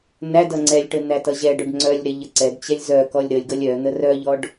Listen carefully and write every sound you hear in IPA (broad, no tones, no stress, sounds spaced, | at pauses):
n æ d ʌ ŋ͡ǀ ɛ lʲ ʈ ə n̪ æ t ʌ ʑ ɛ ɖ œ ɖ ŋ͡ǀ œ lʲ ɾ ɛ ʎ ə ǀ ɛ d t͡ɕ ɛ lʲ z œ k ɔ lʲ ɾ ə lʲ ɡ ʌ lʲ œ n̪ ə r œ ʎ ɔ ɖ